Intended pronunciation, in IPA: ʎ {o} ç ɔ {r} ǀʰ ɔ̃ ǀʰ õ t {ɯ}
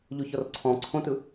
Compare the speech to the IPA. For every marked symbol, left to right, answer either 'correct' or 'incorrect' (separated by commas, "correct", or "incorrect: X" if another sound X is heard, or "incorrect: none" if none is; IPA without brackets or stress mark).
correct, correct, correct